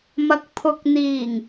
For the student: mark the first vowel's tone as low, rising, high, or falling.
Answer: low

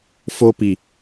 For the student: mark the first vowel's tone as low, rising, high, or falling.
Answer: high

